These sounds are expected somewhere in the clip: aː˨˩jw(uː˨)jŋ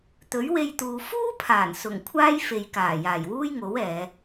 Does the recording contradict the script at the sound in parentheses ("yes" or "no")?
yes